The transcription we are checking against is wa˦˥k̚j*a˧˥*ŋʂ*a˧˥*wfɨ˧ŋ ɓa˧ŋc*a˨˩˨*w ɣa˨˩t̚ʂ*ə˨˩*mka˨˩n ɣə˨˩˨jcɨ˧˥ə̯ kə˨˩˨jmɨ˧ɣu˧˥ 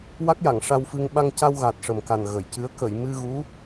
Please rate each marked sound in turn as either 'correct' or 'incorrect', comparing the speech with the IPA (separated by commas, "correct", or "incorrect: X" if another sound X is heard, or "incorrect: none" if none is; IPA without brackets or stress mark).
incorrect: a˨˩˨, incorrect: a˧, incorrect: a˧, correct